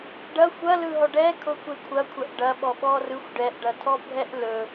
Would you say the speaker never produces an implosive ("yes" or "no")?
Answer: no